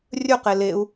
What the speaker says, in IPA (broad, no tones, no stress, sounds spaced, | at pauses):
rʲ ɵ q e l e u̯